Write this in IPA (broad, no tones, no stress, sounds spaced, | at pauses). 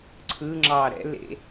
ǀʰ ɯ ŋ͡ǁ ɑ ɾ ɛ̰ l ḛ